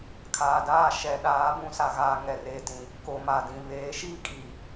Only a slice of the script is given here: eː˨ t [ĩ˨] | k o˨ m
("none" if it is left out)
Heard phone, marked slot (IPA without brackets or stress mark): ĩ˨